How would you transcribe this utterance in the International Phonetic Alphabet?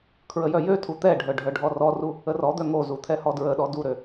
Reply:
kʰ ɹ ə j œ j ø tʰ u t̪ ɛ ɖʱ œ ɖʱ œ ɖʱ ɔ r ɔ r u | ə r ɔ d̪ œ ŋ o z u t̪ʰ ɛ h ɔ d ɹ ə ɗ ɔ d u ɾ ø

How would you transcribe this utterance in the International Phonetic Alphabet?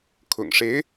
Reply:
kʰ ʊ̰˨˩ ŋ ʂ e˧˥ ɪ̯

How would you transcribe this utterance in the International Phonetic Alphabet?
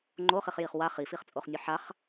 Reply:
ŋ͡ǃ o χ i χ j i χ w a χ i f i χ t͡sʼ o χ nʲ o ħ a χ

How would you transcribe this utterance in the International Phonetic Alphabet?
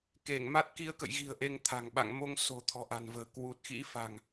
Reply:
k e˧˩ ŋ m a˦˥ t̚ k i˧ ə̯ k ə̰˧˨ j ɣ i̤˨˩ ə̯ ʔ e˧ ŋ t̪ʰ a̤˨˩ ŋ ɓ a̰˧˨ ŋ m o˧ ŋ s o̤˨˩ t̪ʰ ɔ̤˨˩ ʔ a̤˨˩ n v ə̤ː˨˩ k w u˨˩ t̚ x ḭ˧˥ f a̤˨˩ ŋ

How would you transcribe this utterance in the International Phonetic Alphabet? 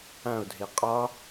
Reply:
ã o̯ dʱ e qʼ ɒ

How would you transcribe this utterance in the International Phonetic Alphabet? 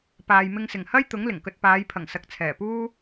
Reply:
p aː˨ j m ɪ˧ ŋ s ɪ˨˩ ŋ h ɐ˥ j t̪ ʊ˨˥ ŋ l ɪ˨˩ ŋ k ɵ˧ t̚ p aː˨˧ j pʰ ɐ˨˩ ŋ s ɐ˨ k̚ t͡sʰ ɛː˨˩ p uː˥

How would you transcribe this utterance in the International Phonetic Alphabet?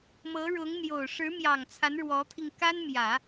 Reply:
m ɤ˧˥ ɻ ʊ˧˥ ŋ n̪ j o˨˩ ʊ̯ ʂ ɻ̩˧˥ m j ɑ˨˩ ŋ t͡sʰ a˧˥ n ɻ w ɔ˧˥ t̪ʰ i˧ ŋ k a˥ n m j ä˨˩˦

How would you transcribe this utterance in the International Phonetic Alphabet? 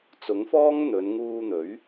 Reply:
t͡s ʊ˨˥ ŋ f ɔː˥ ŋ n̪ ɵ˨˧ n ŋ uː˧ n̪ ɵ˨˥ ɥ

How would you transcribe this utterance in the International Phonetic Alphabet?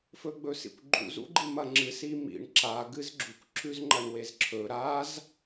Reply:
f ɵ ɡ͡b ɵ s ḭ kʷ ɡ͡ǃ ṵ z ṵ ɡ͡ǃ i m ɐ ŋ͡ǁ ɨ s i m ḭ ɳ ǁ a ɡ ɨ z ɡ͡ǁ u kʷ ǁ ʉ z ŋ͡ǃ ɐ ɳ w e z ǁʰ ɵ ɾ a z

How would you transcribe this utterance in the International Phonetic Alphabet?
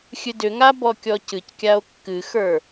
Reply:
xʲ ɨ d ʏ ŋ a b ɔ kʲ ɔ c ɨ c kʲ a o̯ kː ɨ x ə˞

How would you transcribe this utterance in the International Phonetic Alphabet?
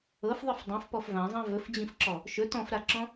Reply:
ɤ f ðˤ ɨ f dˤ ɛ̃ f p ɔ f v ã zˤ ã v ɵ f d͡ʑ ĩ f ǁ ɔ | ʃ ɵ t ɔ̃ f ɾ a ǁ ɔ̃

